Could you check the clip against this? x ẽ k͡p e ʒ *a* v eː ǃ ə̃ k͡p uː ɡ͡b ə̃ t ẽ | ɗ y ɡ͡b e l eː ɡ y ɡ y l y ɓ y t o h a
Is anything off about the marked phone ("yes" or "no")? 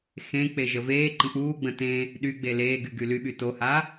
yes